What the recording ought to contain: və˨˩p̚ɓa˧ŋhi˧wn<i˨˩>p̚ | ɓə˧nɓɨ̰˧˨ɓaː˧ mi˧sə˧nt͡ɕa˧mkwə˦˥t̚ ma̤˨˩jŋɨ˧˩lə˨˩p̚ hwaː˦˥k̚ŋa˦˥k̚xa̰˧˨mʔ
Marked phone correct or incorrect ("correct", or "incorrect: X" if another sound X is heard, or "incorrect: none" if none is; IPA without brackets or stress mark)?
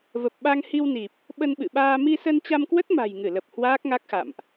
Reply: correct